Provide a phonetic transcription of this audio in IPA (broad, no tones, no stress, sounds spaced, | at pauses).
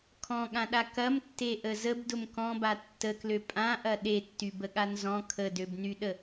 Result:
kʰ ɔ̃ ɠ ã ɗ a k ɐ m tː e ʔ ə z ə b d ʊ m k ɔ̃ b a tː ə k l ø pʼ ã ʔ ɐ ɗ e tː y b ə ɠ a n z ɔ̃ kʰ ə d ø b n y ɗ ə